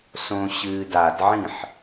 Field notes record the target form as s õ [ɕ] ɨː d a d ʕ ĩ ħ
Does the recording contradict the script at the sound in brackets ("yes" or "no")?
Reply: no